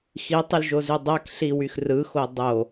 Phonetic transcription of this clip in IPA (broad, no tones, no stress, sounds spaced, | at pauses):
x i tˤ y l ʒ o z y dˤ æ k ɬ i w y x r ɯ x o dˤ o